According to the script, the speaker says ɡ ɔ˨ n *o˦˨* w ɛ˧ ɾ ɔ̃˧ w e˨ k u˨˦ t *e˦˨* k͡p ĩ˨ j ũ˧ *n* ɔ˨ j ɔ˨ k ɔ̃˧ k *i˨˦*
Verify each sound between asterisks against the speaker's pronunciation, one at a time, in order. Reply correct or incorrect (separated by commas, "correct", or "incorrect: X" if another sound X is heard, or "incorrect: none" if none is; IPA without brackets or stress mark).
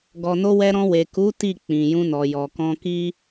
incorrect: o˧, incorrect: i˦˨, correct, incorrect: i˦